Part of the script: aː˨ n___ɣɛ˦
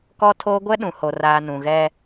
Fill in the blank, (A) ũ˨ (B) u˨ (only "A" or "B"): A